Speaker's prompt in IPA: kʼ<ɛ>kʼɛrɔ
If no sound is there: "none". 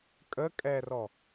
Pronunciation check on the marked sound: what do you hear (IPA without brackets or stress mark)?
ə